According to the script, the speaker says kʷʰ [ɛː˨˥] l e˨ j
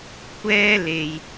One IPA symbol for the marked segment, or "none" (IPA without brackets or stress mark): ɛː˥